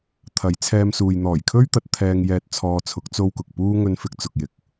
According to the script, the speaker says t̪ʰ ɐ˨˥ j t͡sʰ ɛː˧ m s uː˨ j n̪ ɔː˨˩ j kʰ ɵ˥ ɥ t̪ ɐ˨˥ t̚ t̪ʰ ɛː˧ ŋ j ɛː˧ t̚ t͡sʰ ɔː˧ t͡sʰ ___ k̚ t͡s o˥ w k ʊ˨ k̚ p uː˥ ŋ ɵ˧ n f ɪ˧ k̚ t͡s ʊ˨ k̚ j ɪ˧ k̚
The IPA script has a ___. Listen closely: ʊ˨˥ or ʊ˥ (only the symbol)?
ʊ˨˥